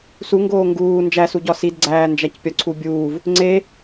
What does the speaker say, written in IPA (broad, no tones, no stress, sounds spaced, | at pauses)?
s u ŋ ɡ oː ŋ ɡ uː n d͡ʒ æ s u ɟ ɒ s i d ɡ͡ǀ æː n d͡ʒ æ c pʲ ɒ ǀʰ u bʲ uː v | ŋ͡ǀ e